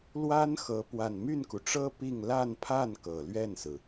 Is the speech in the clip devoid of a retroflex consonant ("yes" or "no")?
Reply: no